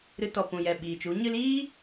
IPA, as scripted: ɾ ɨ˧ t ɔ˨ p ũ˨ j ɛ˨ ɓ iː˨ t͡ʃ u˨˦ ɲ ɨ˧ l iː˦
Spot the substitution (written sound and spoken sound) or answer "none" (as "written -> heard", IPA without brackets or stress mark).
none